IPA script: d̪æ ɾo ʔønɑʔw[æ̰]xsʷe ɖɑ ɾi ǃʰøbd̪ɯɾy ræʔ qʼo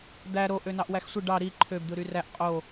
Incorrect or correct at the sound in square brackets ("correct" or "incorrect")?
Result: incorrect